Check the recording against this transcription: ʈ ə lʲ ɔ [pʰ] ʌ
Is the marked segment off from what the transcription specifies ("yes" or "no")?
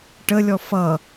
yes